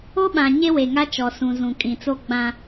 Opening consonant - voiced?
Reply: yes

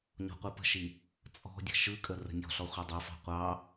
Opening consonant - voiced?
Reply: yes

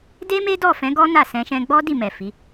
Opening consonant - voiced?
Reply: yes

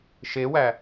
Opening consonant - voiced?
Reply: no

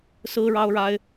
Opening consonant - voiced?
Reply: no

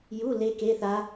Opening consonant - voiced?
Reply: yes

